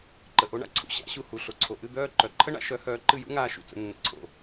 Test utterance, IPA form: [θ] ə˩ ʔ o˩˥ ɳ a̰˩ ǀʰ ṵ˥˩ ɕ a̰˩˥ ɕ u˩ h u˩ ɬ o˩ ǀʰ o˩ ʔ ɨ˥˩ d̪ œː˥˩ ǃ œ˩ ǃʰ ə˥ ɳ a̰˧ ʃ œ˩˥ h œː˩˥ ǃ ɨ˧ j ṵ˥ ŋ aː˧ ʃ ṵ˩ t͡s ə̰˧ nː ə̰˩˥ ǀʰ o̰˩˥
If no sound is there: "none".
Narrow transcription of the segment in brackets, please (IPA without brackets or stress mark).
ǃ